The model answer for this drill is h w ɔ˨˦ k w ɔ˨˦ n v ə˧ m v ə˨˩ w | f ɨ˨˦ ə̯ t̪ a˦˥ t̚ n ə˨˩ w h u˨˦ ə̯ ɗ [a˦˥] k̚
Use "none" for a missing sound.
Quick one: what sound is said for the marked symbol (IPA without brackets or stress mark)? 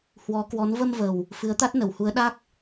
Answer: a˦˥